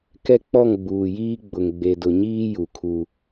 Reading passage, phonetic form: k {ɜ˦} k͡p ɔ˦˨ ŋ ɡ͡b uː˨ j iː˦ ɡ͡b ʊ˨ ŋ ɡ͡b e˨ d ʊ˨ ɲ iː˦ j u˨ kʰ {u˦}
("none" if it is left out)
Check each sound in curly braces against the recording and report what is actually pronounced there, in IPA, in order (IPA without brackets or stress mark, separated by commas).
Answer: ɛ˦, u˦